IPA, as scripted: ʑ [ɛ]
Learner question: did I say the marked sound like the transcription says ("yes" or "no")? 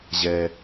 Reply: yes